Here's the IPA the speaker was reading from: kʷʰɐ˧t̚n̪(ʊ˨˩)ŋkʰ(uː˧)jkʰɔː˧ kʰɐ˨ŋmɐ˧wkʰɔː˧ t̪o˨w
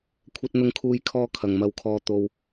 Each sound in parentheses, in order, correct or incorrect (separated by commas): incorrect, correct